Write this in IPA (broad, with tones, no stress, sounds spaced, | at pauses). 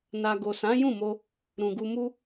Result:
n a˧ ɡ o˨ s ã˨˦ j ũ˦˨ m o˧ | ɾ ũ˨ ɡ u˧ m u˦